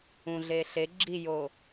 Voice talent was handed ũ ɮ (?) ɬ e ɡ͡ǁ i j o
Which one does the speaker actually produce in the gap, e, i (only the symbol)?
e